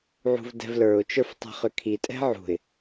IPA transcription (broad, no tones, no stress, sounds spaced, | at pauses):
ʕ ṳ v d ɛ̤ v l ə˞ ʊ̯ t͡ʃ ə˞ f tˤ ɛ̤ χ ʏ kʰ i tʼ ɛ̤ ʕ ṳ ɪ̯